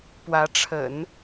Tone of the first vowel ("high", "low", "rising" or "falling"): rising